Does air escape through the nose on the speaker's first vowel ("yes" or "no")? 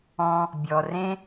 yes